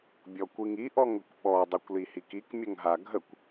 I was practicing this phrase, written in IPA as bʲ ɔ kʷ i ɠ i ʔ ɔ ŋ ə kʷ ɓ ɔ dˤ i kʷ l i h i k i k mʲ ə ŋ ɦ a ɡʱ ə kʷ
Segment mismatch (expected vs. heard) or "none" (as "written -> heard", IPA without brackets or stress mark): ɠ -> ŋ